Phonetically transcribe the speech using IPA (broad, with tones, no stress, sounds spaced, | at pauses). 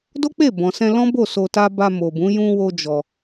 d o˦ k͡p e˦˨ b ɔ̃˨ s ɛ̃˧ l ɔ̃˦ b o˦˨ s o˧ t a˦ b a˧ m o˨ b ũ˨˦ j ũ˦ w o˦ d͡ʒ ɔ˧